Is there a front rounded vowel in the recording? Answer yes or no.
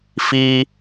no